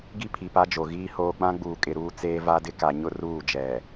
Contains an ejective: yes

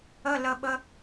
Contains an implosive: yes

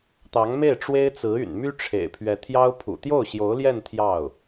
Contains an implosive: no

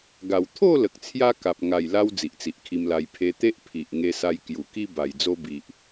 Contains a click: no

